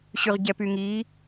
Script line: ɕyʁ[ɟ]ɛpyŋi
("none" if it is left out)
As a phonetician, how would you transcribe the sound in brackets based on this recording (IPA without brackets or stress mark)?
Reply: ɟ